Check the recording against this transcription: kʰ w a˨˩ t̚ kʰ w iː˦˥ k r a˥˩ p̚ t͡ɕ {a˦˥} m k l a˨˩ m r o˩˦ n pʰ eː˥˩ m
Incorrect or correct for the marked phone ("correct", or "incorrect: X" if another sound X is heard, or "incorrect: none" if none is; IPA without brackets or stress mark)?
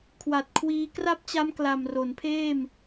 correct